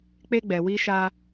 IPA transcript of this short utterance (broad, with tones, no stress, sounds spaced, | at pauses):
k͡p e˦ ɡ͡b ɛ˧ w i˦ ʃ a˦